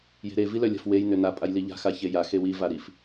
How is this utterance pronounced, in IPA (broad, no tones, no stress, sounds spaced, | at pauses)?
j e̤ ɾ e v i l œ lʲ a̤ f w e j n ʏ n a pʼ a j l i ʎ a̤ x a ç e j a x e w i v a ɾ i f